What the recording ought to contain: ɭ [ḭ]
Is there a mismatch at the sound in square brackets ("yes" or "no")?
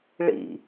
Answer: no